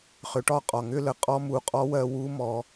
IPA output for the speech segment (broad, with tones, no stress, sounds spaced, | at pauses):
χ ʏ˩˧ ʈ ɒ˧ qʼ ɒ˩ ŋ ʏ˥ l ə˩˧ qʼ ɔ˧˥ m u˩˧ qʼ ɔ˧˥ w ɜ˧ w u˧˥ m ɔ˩˧